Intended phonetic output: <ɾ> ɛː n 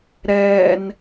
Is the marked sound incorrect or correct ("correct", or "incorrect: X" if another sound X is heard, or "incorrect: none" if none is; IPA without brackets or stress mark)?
correct